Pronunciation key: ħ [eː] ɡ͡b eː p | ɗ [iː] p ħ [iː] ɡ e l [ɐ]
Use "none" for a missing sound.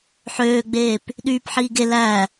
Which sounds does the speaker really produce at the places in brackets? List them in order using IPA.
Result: øː, yː, iː, æ

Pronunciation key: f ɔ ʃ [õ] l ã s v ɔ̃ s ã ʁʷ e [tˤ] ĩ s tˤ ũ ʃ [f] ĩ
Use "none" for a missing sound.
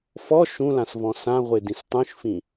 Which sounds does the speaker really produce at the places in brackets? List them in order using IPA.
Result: ũ, d, f

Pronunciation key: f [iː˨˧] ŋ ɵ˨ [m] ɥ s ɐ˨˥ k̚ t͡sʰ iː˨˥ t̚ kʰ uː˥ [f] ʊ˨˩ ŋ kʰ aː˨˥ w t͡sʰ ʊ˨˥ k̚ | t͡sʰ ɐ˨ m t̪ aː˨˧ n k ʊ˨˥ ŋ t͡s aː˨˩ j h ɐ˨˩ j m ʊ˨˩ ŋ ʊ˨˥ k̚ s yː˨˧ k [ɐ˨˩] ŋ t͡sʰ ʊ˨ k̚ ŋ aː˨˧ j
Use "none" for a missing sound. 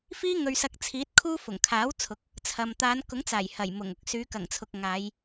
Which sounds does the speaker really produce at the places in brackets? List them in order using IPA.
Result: iː˥, none, f, ɐ˨˩

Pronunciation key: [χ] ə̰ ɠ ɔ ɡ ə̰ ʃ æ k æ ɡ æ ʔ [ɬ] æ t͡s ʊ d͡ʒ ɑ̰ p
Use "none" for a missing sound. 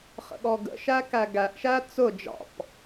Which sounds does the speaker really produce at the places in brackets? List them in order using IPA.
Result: χ, ʃ

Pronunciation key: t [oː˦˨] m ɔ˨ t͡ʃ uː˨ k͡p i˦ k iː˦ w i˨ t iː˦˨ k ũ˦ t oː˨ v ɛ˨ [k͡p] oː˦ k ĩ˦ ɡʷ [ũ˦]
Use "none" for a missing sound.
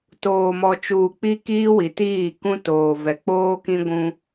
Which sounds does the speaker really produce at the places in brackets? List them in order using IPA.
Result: oː˨, k͡p, ũ˦

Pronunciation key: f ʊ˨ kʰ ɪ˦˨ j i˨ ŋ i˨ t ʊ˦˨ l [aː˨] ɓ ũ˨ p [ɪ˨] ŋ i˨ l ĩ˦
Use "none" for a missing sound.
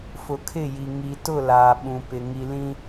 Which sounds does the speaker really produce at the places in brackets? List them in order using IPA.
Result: aː˨, ɪ˨

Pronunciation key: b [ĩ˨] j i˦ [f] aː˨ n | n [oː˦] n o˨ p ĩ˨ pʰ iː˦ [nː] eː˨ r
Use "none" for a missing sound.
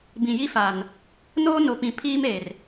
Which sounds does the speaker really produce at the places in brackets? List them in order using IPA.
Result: ĩ˨, f, oː˦, m

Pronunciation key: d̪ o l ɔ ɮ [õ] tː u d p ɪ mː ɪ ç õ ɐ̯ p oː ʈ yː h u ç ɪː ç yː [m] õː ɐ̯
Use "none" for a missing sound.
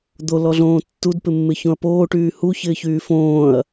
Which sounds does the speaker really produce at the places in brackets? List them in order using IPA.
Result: õː, f

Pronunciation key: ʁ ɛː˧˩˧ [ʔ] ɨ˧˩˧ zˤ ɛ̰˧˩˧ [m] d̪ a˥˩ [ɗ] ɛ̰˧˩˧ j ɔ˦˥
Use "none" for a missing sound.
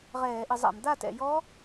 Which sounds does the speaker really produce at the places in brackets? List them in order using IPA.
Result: ʔ, m, t

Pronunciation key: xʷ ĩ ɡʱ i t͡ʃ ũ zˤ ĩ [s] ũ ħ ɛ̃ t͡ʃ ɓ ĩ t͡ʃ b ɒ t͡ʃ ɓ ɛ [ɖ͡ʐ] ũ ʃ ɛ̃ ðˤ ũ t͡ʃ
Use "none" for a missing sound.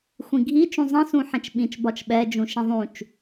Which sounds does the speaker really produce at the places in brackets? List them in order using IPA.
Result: s, d͡ʒ

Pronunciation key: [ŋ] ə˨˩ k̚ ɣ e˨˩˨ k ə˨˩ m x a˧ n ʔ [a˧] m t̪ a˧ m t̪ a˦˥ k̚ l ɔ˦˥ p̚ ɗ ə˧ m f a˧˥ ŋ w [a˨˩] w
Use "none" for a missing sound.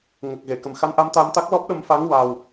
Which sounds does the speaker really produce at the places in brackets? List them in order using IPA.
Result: ŋ, a˧, a˨˩

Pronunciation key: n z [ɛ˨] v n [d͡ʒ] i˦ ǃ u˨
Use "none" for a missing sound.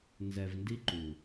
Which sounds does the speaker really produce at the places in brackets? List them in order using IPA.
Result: ɛ˨, d

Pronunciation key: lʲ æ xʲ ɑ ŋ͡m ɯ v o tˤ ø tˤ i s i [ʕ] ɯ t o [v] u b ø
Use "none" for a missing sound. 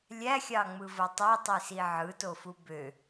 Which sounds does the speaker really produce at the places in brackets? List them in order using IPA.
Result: ʕ, f

